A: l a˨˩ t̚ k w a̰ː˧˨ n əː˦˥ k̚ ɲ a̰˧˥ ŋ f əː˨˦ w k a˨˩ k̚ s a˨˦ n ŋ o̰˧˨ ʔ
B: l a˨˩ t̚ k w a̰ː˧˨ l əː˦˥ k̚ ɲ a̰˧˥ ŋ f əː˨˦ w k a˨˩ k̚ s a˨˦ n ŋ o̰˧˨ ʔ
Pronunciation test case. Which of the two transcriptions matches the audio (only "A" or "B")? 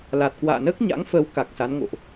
A